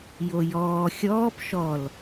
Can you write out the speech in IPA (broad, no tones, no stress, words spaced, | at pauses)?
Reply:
jojɔː xʲɔːp ʃɔl